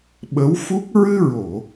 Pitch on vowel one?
rising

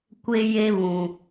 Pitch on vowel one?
high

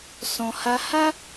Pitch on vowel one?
low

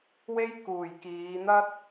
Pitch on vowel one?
high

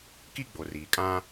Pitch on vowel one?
high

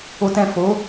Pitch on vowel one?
low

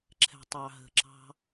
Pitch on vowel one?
low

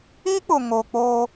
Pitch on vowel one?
high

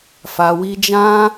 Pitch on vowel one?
low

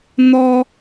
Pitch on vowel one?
high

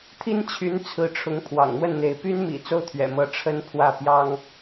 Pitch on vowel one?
high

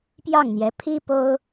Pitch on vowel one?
falling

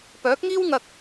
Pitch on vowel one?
rising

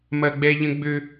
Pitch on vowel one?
high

